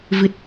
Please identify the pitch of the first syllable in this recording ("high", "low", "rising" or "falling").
low